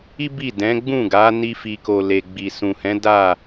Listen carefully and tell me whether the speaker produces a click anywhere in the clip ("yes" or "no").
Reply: no